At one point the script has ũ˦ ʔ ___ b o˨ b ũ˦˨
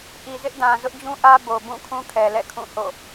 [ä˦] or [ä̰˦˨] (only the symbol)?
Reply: ä˦